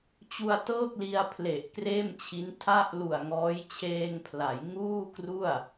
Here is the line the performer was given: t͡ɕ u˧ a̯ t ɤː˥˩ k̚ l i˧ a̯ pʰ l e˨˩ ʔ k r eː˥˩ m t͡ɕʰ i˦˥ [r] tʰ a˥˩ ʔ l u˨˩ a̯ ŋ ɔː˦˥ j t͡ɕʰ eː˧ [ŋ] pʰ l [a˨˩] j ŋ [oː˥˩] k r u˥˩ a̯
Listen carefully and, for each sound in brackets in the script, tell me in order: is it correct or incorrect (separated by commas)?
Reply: incorrect, correct, incorrect, incorrect